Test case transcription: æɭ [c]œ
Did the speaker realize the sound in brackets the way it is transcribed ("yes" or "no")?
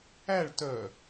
no